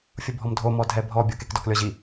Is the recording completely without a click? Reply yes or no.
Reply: yes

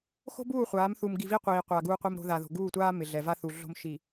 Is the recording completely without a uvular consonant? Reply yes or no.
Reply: no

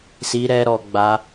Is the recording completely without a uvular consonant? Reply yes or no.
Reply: yes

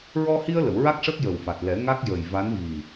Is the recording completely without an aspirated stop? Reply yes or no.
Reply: yes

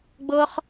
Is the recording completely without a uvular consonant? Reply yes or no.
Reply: no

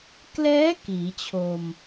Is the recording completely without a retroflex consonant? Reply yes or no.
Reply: yes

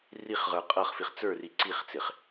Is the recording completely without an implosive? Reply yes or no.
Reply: yes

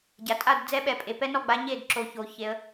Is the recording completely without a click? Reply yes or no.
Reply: no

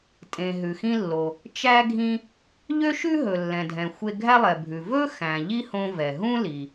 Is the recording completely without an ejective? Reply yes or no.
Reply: no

